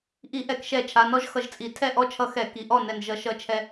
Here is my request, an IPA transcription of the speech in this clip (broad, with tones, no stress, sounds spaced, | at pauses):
ʔ i˧˩˧ ʔ ɛ˧˩˧ k ʃ ɛ˧˩ t͡ʃʰ a˩˧˩ n ɔ˦˥ ʒ x ʌ˧˩ ʒ t͡sʼ i˧˩˧ tʰ ɛ˥˩ ʔ ɔ˦˥ t͡ʃʰ ʌ˧ x ɛ˧˩˧ k i˩˧˩ ʔ ɔ˥˩ n ɛ˧˩ n ʒ ʌ˧˩˧ ʃ ʌ˧˩ t͡ʃʰ ɛ˧